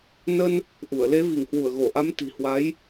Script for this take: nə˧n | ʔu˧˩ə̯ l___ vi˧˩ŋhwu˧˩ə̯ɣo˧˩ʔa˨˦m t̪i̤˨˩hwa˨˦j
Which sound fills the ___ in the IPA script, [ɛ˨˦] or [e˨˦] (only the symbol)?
e˨˦